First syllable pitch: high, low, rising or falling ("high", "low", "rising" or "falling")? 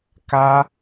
high